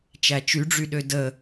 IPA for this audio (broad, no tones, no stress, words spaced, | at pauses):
t͡ʃæt͡ʃyɖ͡ʐyɗø də